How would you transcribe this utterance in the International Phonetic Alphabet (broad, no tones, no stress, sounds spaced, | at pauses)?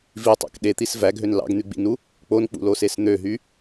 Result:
v i tˤ æ̰ k ɗ e t̪ i s v æ ɡ ɦ ø n l ɑ̰ ɡ n̪ y ɡ͡b ḭ n u | k͡p o n k͡p ṵ l o s e s n̪ ø ɦ y